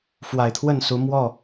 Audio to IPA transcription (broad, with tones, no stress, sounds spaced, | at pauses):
f w a˨˩ ɪ̯ t̪ʰ w ə˥˨ n s u˨˦ m w ɔ˥˨